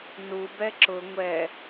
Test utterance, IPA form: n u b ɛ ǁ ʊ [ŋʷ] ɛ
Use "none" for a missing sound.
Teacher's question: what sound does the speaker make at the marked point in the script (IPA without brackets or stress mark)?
ŋʷ